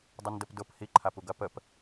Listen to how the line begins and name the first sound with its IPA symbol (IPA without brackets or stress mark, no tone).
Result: dˤ